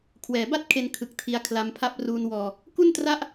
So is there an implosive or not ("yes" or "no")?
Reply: no